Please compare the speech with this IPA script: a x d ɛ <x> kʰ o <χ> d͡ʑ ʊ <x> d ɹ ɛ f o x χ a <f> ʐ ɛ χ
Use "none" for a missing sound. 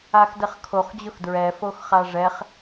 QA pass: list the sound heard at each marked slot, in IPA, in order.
χ, χ, x, none

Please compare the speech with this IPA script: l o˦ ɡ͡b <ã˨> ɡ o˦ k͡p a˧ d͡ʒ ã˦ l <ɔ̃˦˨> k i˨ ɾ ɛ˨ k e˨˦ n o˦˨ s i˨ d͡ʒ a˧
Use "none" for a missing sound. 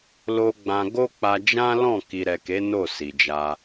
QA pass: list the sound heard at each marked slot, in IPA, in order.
ã˧, ɔ̃˦˨

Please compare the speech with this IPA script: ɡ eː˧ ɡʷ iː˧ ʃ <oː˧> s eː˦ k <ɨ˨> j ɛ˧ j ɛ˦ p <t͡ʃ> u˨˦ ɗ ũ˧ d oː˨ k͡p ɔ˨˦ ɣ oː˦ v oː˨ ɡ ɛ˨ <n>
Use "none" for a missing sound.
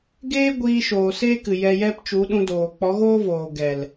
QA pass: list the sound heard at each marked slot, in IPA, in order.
oː˨, ɨ˨, t͡ʃ, l

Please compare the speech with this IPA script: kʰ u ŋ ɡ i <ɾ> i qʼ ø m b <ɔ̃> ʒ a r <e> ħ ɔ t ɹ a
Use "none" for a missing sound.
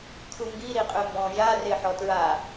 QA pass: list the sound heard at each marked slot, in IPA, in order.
ɾ, ɔ̃, e

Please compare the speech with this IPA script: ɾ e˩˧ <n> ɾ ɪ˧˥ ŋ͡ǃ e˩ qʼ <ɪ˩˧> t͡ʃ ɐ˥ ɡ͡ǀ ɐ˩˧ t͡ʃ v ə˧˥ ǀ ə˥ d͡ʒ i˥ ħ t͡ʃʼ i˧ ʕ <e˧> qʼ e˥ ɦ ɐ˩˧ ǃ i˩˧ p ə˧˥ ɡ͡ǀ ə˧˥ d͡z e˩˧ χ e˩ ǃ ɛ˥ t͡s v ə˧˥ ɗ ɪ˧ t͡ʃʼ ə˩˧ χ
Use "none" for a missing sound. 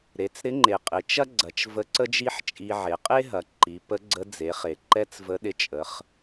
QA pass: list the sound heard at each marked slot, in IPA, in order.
t͡s, ɪ˩˧, e˩˧

